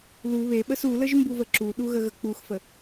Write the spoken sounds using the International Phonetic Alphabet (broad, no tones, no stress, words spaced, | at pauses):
lu βeɓəs uləʒmbuvə ǁuɗuɣəɣə k͡puxfə